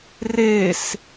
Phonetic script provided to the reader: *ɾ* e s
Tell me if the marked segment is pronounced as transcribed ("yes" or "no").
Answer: no